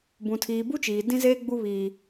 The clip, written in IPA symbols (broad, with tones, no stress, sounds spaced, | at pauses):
b ũ˨ tʰ iː˨ b u˦ t͡ʃ iː˨ d ĩ˦ z eː˦ ɡ͡b u˦ β iː˦